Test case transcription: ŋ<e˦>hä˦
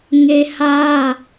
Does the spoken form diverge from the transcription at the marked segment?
no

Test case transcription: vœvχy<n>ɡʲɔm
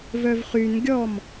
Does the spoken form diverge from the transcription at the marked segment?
no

